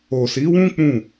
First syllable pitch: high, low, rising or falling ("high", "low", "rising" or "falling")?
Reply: low